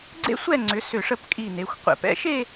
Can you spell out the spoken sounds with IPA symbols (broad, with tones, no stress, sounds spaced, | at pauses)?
ɡ͡ǀ ḛ˥ sʷ ɛ˥˧ ŋ͡ǀ ʏ˩˧ s ʏ˧˩ ʂ ə˥˧ p kʼ i˧˩ n e˩˧ xʷ qʷ ɛ̰˧˩ p ɛ̰˥˧ ʃ e˥˧